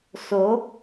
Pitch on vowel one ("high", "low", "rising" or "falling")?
rising